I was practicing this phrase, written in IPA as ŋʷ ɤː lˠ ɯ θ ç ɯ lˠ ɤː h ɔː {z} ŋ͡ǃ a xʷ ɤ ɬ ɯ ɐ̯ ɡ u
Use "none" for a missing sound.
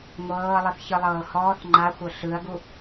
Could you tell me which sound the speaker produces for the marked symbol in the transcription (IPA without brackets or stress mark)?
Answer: θ